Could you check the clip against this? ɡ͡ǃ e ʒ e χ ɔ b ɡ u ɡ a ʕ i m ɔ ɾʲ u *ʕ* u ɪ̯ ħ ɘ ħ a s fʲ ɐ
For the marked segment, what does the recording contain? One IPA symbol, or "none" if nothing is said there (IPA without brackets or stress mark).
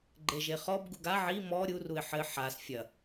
r